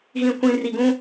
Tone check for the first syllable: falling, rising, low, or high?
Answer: low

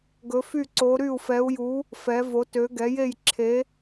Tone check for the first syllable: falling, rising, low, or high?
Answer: rising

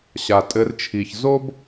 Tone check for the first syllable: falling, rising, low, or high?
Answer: low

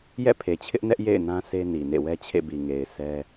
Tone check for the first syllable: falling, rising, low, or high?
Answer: falling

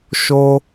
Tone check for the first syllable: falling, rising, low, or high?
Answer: high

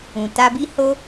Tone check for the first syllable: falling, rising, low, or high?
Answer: low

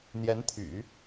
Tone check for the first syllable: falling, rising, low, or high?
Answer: rising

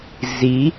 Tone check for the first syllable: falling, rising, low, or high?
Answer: rising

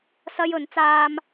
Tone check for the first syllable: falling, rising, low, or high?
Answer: high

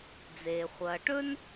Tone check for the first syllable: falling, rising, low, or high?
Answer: low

